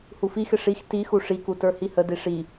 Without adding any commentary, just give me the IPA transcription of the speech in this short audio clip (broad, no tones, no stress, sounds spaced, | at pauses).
h u f i x ɪ ʂ i x t i x u ʂ i k u t ə˞ h i h ə d i ʂ i